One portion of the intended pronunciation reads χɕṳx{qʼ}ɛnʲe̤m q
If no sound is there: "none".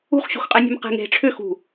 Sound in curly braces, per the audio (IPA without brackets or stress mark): qʼ